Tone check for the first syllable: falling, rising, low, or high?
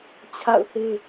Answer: falling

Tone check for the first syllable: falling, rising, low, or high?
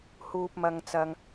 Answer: low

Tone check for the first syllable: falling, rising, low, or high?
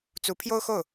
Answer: rising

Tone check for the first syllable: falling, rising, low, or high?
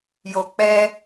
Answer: low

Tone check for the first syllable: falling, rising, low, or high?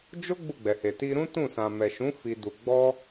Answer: high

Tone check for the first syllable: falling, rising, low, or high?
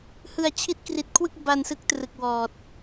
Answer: low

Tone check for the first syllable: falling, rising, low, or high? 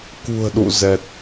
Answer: low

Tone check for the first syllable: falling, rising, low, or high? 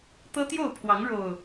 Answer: high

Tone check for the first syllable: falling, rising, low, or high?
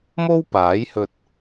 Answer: high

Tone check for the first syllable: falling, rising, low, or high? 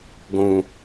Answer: low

